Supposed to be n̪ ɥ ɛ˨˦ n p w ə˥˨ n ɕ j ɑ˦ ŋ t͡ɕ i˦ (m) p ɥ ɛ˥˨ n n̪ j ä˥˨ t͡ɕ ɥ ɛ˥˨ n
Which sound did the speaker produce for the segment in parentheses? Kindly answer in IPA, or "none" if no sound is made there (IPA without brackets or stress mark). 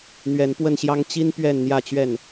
n